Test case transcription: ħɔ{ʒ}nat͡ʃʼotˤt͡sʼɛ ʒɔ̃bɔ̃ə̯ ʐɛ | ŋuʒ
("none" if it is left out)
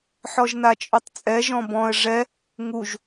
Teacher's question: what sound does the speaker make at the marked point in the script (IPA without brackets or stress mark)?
ʒ